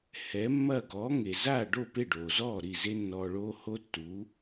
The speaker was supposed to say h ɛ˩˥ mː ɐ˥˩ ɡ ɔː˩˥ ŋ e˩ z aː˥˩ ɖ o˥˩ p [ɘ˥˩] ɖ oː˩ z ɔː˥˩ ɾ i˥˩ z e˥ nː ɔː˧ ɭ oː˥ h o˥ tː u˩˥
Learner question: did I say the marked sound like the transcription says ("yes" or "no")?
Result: no